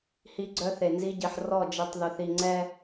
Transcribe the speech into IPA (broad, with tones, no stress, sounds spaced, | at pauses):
h i˦ ɡ͡ǀ œ˦ θ e˨ n z i˦ ɟ i˨ ħ r ɔ˦˨ d͡ʒ i˨ tˤ ð œ˨ θ i˨ ŋ͡ǀ ɛ˦